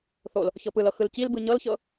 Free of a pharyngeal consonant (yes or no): yes